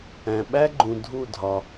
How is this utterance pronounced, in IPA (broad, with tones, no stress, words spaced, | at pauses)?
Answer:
æ̃˩ɓæ˦ɡ͡ǃũ˩ dʱu˧˩dʱɒ˩